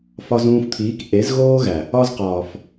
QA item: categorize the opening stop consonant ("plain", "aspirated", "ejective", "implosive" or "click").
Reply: aspirated